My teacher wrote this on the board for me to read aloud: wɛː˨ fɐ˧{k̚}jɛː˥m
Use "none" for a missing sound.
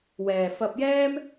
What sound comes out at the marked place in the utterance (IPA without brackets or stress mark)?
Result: p̚